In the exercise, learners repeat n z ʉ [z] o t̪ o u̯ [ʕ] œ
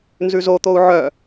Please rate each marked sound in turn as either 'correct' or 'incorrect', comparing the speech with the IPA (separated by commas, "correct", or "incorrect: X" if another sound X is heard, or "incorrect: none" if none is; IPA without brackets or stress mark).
correct, correct